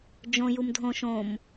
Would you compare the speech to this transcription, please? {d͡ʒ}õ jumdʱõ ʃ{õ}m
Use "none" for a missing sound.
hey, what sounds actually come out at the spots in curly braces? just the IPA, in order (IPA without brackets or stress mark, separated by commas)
d͡ʒ, õ